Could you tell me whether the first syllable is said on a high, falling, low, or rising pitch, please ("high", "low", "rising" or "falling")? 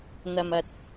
low